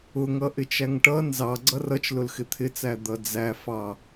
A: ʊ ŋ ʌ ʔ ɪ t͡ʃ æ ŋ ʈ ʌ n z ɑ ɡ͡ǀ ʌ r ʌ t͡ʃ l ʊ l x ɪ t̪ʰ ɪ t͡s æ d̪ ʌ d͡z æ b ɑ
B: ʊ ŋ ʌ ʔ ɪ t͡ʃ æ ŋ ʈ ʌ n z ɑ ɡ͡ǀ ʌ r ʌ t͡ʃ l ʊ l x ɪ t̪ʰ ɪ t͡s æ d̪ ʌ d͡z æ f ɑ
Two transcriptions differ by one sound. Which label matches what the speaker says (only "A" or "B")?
B